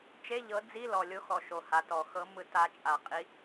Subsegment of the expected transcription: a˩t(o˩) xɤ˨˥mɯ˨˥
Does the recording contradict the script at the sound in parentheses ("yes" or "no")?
yes